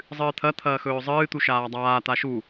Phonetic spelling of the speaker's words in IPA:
zˤ ɨː t̪ʰ ɐ t̪ʰ ɐː x ɵː zˤ ɨː t̪ u ʃ aː dˤ aː t̪ a ʃ u

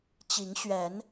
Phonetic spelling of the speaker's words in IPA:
t͡ɕ i˨˦ ŋ ɕ ɥ ɛ˨˦ n

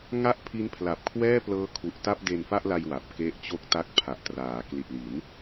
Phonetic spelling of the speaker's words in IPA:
ŋ a˥˩ ʔ pʰ i˦˥ n pʰ l a˨˩ p̚ kʰ w ɛː˥˩ p l ɤː˦˥ kʰ u˨˩ ʔ t a˥˩ p̚ d e˧ n f a˥˩ ʔ l a˧ j w a˨˩ p̚ k e˦˥ ʔ t͡ɕ o˥˩ k̚ t a˦˥ k̚ pʰ a˨˩ ʔ t r aː˩˦ k l i˨˩ t̚ l i˩˦ n

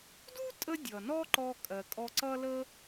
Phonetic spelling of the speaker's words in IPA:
d u˥ tʼ ə˧ dʲ ʌ˩ n ɔ˥ ǃ ɔ˧ kʼ ɜ˩ kʼ ɔ˧ ǀ ʌ˥ l ə˥

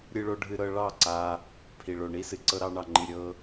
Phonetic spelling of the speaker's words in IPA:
ɾʲ ɨ˦ ɭ o˦ ɖʱ ɨ˦ ɾ ɤ˦ ɭ ɑ˦˨ ǀ a˧ | pʰ i˨ ɭ o˨ ɳ i˦ s ɨ˨ ǀ ɤ˦ ɾ ɑ˦ ɳ ɑ˧ ŋ͡ǃ i˧ ɾʲ ɤ˦

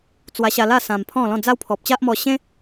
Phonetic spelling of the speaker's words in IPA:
t͡s w a˧ ɕ a˧ l a˥˧ s ã˧ m pʰ ɔ̃˥˧ l ɔ̃˥˧ d͡z a˦ w pʰ ɔ˨ p̚ t͡ɕ a˦ ʔ m ɔ˧ ɕ ẽ˦

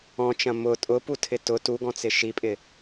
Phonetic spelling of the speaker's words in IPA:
ɔ̃ t͡ʃ ɐ̃ m ʊ tʼ ʊ p u tʰ ɪ t ʊ t u ɡ ɔ̃ t͡s ɪ ʃ i pʼ ɪ

